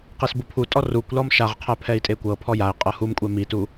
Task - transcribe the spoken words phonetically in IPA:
qisbupʰutʼɔ rukʷlɔm ʃaʁqʰɛ pʰɛi̯tʼekʷɤpʰɔ jai̯qʼɤ humkʷʼɛ mitu

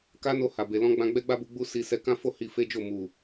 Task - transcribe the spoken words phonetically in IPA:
ka˦no˧ ha˨be˨ lɔ̃˧ɡ͡bã˧ ɡ͡bɛ˦ɡ͡ba˦bu˧ ɡ͡bu˧ si˧ sɛ˧ kã˦fo˦˨ hi˧fe˦d͡ʒo˦˨ mu˨

